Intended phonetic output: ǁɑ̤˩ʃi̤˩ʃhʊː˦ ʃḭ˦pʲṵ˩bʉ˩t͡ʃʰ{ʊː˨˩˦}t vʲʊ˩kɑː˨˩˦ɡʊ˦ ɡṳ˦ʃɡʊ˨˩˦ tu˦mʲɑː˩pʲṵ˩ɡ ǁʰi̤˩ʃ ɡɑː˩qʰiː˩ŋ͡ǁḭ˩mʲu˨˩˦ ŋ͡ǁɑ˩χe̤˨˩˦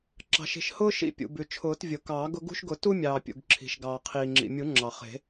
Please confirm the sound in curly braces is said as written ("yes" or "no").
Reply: yes